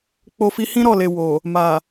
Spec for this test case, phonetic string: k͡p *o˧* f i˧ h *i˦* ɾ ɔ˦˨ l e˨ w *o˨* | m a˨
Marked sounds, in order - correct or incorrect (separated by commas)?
correct, incorrect, correct